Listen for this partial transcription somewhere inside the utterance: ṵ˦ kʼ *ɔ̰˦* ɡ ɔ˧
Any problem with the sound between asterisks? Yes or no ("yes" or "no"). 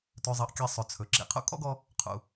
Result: no